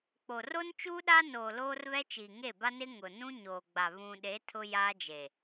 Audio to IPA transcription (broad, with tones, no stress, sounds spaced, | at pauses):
k͡p o˨ r o˦ n t͡ʃ uː˦ ɗ a˦ n oː˨ l oː˦ r β ɛ˦ t͡ʃ iː˨ ŋ e˦˨ b a˦ n ɪ˦ ŋ ʊ˨ n ũ˦ ɲ oː˨ ɡ͡b a˨ β ũ˨ ɗ e˨˦ tʰ ʊ˦ j aː˦ d͡ʒ e˨